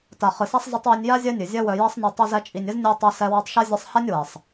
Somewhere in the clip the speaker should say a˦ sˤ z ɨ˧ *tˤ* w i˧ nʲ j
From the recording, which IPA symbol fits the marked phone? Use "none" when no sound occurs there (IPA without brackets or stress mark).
tˤ